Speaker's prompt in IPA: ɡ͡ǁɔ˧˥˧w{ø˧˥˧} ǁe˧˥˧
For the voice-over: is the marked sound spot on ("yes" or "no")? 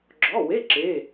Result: no